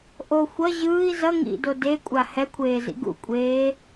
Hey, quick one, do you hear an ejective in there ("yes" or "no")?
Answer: yes